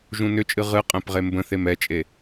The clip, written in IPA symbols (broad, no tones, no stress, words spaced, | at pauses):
ʒũnʏt͡ʃʼɨ ʁɨqʼɛ̃p ʁembə̃θem ɛt͡ʃʼe